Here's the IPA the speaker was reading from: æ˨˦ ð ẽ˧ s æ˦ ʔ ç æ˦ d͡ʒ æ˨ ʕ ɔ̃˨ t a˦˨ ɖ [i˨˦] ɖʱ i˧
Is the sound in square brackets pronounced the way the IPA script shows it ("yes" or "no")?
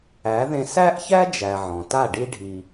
no